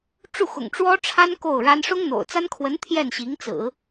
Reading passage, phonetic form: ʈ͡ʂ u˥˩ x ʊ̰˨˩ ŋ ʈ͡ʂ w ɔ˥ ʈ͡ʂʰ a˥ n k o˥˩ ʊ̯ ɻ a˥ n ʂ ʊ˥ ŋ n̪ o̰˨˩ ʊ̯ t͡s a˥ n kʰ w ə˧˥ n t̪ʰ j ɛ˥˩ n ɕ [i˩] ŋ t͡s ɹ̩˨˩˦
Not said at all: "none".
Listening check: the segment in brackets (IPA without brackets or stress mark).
i˧˥